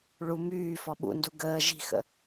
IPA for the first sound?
ɭ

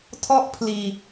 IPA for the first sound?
tʰ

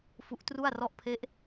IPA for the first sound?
f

